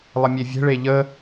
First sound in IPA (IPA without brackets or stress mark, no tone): lˠ